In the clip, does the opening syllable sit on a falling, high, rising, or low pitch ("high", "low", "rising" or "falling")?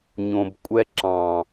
low